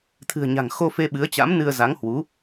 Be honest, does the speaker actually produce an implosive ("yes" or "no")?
yes